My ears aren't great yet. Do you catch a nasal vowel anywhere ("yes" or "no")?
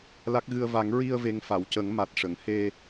no